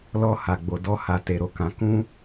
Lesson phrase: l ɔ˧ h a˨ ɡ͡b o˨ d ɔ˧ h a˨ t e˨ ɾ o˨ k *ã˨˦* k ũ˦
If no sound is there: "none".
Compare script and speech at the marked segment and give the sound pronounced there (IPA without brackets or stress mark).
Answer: ã˨˦